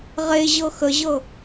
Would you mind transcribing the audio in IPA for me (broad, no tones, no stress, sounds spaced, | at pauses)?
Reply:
ʁ e ʑ ɤ x ə ʑ ɤ